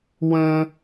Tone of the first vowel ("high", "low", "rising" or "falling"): high